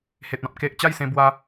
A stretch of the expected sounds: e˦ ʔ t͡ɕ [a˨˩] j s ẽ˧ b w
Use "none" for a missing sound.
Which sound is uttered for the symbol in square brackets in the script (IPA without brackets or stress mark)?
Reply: a˥˧